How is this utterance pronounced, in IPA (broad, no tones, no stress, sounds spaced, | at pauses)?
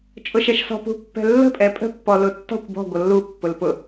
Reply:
t͡ʃʼ ʊ ʃ ɛ ʃ s ɔ̤ p ṳ pː ɛ̤ lː ə̤ pʼ ɛ pʼ ə̤ pː ɔ l ʊ tː ɔ̤ kʷ b ɔ̤ ɡʷ ʌ lː u pː ʊ l p ʊ